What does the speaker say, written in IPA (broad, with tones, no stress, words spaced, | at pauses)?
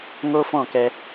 ŋo˦fɔ̃˦˨kɛ˧